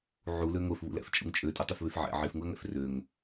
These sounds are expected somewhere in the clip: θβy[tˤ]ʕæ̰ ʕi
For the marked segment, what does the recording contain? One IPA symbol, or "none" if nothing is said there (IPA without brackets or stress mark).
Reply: θ